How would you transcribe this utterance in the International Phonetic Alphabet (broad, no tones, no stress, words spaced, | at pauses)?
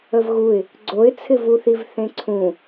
əvɣuɪ̯ | ɡ͡ǀoɪ̯t͡sʰɪvuθiv θẽǀʰũ